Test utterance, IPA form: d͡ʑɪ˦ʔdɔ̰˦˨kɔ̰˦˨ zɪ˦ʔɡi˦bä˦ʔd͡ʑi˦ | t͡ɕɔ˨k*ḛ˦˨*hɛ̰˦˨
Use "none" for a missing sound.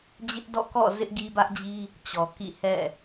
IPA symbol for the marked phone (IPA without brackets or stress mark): ḭ˦˨